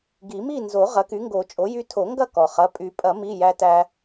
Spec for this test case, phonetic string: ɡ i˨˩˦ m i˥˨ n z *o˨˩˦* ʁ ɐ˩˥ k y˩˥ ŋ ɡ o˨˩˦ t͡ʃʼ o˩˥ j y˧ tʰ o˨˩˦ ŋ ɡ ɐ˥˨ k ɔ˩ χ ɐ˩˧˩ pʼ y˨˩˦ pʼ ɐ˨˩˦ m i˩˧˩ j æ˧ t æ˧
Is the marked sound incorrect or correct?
correct